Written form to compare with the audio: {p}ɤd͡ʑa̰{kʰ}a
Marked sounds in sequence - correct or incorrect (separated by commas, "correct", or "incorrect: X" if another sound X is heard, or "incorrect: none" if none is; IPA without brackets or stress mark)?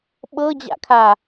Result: incorrect: ɓ, correct